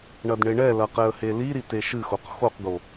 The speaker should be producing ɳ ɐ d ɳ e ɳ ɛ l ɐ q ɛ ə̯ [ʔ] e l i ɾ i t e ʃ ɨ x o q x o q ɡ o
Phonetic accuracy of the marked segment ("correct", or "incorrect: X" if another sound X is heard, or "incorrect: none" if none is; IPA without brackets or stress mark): incorrect: h